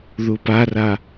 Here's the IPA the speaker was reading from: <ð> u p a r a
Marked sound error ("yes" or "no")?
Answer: no